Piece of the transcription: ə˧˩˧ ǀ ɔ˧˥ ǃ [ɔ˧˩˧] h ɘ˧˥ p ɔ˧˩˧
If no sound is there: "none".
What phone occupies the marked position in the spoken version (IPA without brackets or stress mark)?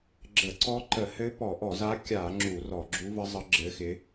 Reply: ə˧˩˧